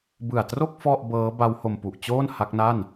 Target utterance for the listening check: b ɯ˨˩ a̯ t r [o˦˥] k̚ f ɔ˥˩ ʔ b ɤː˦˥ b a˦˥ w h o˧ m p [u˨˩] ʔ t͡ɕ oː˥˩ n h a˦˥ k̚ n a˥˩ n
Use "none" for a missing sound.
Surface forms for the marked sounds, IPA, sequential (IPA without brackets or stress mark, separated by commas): o˥˩, u˨˩